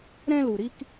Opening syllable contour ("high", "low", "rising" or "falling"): high